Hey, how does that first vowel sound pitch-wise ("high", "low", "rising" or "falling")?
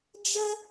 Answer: high